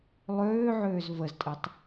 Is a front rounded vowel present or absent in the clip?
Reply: present